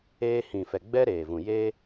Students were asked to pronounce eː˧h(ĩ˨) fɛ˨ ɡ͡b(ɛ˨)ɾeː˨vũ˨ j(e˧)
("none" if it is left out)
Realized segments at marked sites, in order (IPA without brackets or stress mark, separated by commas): ĩ˨, ɛ˦, eː˧